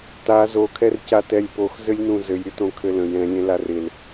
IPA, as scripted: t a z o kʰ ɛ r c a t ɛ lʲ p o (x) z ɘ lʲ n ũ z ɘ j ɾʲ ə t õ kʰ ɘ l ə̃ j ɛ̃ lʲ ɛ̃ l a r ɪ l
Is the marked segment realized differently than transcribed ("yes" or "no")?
no